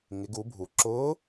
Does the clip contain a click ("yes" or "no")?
yes